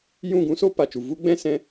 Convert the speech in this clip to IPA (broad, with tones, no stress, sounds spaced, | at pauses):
j ũ˦˨ ɡ ũ˨˦ s oː˦ p a˨ t͡ʃ u˨ v u˦ ɡ͡b ɛ̃˦ s ɛ̃˧